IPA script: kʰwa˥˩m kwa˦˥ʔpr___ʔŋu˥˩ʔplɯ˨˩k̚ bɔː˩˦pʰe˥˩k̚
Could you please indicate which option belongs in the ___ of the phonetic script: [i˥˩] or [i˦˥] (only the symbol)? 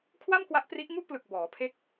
i˦˥